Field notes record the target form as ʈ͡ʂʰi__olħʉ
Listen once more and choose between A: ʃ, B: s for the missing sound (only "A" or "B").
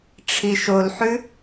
A